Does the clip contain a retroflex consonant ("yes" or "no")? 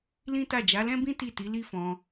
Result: no